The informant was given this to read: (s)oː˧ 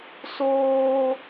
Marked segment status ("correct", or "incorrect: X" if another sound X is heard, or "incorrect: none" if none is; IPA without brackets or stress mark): correct